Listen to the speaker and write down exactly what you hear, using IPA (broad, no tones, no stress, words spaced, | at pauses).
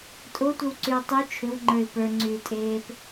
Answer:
tʼotʷɘwǀyə̯ tˤy t͡ʃʰʏwŋ͡ǃə˞ɪ̯ pə˞ŋ͡ǀyːtʼeːp